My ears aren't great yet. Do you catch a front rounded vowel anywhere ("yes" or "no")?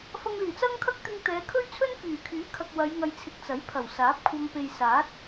yes